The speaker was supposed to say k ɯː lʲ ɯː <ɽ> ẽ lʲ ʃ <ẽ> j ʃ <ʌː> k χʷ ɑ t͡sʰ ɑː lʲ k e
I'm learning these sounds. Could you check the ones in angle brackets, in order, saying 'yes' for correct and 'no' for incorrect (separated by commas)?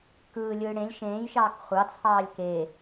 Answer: yes, no, no